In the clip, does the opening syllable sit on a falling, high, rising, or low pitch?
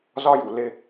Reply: high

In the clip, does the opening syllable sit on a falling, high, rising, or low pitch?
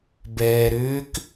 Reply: low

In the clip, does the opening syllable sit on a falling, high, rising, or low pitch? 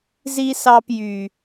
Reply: high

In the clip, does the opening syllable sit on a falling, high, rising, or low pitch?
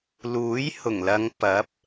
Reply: rising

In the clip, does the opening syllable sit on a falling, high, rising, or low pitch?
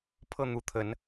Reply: falling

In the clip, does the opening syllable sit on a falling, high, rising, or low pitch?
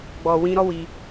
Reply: low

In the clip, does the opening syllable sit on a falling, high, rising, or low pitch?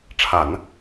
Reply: low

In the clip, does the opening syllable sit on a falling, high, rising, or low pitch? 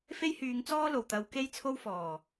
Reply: high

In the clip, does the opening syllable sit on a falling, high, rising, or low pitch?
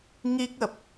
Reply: high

